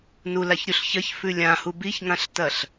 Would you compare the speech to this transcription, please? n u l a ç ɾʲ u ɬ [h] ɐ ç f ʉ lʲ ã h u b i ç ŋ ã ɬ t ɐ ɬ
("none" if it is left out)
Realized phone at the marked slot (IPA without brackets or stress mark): ç